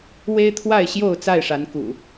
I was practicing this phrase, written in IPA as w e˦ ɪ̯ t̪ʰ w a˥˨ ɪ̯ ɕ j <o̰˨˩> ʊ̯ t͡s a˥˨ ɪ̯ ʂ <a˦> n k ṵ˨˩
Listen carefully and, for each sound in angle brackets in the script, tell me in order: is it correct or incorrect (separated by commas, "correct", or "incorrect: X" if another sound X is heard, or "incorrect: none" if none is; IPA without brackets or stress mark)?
incorrect: o˥˨, incorrect: a˨˦